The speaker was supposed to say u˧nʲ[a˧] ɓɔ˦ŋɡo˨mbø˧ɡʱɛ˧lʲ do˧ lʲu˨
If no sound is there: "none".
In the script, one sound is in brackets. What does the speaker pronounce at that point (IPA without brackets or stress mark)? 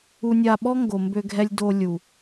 a˧